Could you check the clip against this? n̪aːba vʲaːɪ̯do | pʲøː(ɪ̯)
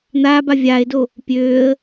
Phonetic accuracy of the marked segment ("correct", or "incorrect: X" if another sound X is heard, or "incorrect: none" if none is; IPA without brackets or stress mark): incorrect: ə̯